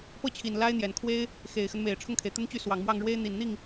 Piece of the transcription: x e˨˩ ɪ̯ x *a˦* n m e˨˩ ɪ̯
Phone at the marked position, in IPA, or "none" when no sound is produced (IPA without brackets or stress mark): ə˦